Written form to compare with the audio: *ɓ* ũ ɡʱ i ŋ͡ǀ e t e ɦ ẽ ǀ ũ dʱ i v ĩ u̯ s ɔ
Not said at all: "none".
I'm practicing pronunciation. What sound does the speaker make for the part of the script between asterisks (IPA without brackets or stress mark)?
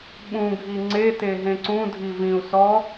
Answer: ɓ